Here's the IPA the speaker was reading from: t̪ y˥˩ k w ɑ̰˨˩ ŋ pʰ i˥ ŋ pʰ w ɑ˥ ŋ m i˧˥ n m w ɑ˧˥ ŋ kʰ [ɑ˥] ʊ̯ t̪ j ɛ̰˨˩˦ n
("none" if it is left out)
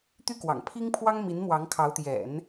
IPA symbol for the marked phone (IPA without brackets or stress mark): ɑ˧˥